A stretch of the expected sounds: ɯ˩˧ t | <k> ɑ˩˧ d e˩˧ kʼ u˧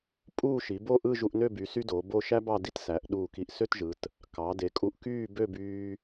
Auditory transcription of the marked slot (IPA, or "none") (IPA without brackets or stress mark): k